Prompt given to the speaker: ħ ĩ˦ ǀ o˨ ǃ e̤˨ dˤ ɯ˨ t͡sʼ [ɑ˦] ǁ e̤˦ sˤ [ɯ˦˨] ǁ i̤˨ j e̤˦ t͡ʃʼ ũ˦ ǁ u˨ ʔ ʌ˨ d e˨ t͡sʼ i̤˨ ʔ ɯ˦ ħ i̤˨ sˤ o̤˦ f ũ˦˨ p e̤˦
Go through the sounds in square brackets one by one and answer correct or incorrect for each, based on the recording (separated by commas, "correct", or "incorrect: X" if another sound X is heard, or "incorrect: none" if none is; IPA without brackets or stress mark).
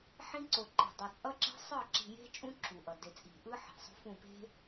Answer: incorrect: ʌ˦, correct